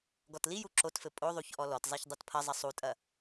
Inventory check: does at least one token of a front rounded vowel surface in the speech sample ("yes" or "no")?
no